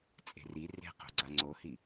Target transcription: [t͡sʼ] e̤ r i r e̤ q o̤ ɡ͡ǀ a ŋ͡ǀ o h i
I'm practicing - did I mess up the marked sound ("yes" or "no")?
no